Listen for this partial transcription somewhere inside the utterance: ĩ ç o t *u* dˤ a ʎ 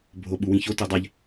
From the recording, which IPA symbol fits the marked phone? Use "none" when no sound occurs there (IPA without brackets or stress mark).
u